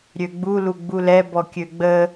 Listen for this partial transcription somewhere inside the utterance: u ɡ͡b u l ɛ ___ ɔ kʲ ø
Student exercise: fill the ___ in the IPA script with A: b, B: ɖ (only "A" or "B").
A